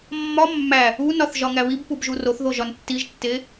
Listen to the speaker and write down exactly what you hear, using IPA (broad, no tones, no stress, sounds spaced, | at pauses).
mː ɒ mː æ | u n ɒ θ ʒ ɒ ŋ æ β i b p u b ʒ u r o θ ð o ʒ ɒ n tː i ʒ tː e